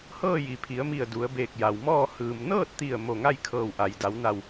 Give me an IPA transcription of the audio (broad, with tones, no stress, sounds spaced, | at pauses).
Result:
h ɤː˥˨ j i˩ pʰ i˩˧ ə̯ m i˧˩ ə̯ d u˩˧ ə̯ b eː˧˩ k̚ j a˩ w m ɔː˥˨ h ɯː˩ m n ɤː˥˨ t̚ t̪ i˧˩ ə̯ m o˧˩ ŋ a˥˨ j kʰ ɤː˧˩ w ʔ a˩ j d a˩˧ w n a˧˩ w